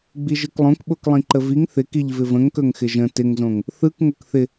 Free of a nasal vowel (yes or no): no